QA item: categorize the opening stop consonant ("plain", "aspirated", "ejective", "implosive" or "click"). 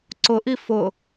click